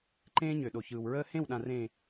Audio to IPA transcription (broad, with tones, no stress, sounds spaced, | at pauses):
ǃ ẽː˦ ɲ ø˨ ɗ o˨ ç ɯː˨ w ɹ əː˦ h ẽ˦˨ w ɗ ã˨ r ẽː˨